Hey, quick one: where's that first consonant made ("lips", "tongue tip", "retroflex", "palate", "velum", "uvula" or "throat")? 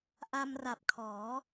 throat